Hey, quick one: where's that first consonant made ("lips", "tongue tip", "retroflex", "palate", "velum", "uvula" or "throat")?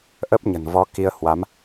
throat